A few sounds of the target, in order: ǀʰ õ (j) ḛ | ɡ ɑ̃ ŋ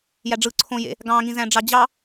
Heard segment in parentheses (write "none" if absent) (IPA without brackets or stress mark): j